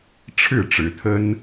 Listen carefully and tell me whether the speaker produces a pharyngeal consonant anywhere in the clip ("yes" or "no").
no